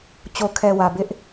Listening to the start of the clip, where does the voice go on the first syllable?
low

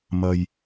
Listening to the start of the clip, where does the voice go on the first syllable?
low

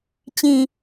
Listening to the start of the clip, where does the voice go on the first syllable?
low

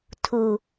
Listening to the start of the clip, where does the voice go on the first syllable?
low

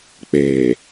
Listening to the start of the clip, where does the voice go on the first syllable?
low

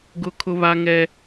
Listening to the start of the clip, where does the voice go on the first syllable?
high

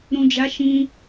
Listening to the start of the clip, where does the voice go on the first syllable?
low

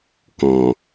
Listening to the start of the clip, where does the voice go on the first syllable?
low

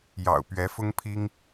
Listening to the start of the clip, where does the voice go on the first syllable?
low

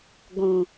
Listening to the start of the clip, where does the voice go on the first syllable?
low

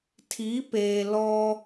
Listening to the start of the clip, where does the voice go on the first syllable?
rising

